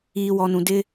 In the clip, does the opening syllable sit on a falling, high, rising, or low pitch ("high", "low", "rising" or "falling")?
low